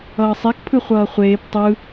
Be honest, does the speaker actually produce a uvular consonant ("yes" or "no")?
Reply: yes